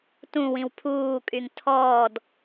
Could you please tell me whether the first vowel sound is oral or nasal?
nasal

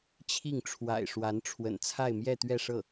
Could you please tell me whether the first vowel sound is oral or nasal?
oral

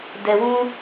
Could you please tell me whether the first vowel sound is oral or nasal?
oral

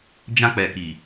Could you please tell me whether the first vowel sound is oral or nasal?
nasal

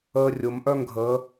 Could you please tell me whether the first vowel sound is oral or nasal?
oral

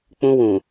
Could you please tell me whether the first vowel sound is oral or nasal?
nasal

